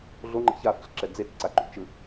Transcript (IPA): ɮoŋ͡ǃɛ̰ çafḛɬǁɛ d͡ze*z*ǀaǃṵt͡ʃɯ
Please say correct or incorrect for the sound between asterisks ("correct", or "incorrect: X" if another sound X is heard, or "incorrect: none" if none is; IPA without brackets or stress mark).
incorrect: t͡s